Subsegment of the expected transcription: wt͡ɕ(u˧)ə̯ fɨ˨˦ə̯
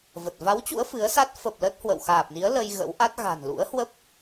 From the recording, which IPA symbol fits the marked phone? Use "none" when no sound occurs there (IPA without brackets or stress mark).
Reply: ṵ˧˥